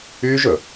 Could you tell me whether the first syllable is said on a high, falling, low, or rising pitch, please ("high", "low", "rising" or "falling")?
high